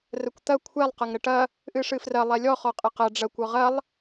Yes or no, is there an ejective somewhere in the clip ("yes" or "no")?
yes